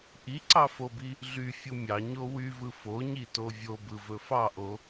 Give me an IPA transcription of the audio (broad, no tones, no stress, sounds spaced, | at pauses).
ʔ i ǀ ɑ f o b i | ɮ y fʲ u mʲ ɑ ɲ o w y v ɯ f o ɲ i t o vʲ o b ɯ v ɵ f ɑ ʔ o